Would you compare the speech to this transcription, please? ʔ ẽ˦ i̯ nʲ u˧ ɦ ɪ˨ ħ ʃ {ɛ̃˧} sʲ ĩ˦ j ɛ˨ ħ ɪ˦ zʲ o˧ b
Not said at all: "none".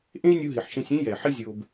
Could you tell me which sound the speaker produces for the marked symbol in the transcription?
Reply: ẽ˧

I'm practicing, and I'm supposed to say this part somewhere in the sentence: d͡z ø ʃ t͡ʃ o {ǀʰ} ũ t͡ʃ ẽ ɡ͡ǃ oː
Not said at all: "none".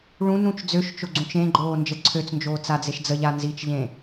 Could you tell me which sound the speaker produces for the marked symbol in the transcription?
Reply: ɡ͡ǀ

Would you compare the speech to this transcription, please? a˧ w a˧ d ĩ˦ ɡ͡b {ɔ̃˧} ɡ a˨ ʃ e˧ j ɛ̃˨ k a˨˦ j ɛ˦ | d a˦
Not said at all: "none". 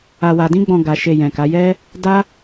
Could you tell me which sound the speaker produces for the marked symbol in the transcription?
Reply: ɔ̃˧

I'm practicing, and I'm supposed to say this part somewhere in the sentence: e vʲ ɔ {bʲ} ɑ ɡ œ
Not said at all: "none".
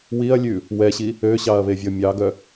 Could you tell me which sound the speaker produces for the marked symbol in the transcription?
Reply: mʲ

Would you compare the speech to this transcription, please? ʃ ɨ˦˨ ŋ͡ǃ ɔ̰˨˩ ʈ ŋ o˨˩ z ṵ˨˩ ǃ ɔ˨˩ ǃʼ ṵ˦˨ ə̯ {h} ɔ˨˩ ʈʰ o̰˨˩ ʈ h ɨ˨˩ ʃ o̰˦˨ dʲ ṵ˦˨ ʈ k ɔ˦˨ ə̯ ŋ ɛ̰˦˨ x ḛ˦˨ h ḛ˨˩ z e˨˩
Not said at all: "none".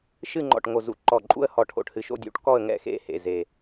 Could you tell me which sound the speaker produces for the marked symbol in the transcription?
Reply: h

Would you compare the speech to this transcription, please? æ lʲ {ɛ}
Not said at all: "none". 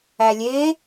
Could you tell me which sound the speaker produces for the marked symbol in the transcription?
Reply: e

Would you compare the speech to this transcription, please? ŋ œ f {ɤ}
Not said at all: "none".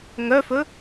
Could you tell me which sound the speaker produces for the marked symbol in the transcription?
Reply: ɵ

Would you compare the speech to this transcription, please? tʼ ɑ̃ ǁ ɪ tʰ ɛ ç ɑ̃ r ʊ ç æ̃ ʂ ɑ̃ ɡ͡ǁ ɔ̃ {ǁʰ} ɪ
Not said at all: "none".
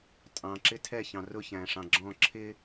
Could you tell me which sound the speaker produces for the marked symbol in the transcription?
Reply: ǁʰ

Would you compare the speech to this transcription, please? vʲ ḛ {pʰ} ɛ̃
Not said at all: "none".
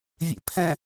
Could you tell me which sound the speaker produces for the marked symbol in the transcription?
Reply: pʰ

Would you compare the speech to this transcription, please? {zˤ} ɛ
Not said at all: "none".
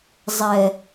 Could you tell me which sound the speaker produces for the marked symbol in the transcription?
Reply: zˤ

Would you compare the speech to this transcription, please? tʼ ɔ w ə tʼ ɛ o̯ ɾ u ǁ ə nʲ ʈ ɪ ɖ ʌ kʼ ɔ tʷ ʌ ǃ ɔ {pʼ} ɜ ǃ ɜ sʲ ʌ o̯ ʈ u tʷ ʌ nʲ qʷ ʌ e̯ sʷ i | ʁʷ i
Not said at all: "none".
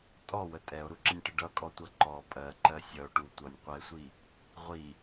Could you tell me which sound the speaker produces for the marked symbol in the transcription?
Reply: pʼ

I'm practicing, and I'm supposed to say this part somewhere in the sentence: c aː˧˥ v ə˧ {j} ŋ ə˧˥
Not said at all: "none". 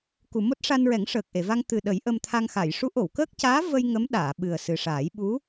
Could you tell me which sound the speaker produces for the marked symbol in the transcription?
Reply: j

